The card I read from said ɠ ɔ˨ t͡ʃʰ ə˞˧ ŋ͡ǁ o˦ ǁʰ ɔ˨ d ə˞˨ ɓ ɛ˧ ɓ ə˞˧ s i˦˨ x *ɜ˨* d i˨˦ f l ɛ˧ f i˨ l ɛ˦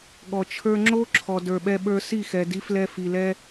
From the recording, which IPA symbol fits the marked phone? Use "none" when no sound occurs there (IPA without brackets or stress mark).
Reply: ɛ˨